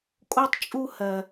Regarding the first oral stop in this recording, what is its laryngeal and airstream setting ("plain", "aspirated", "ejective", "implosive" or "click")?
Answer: ejective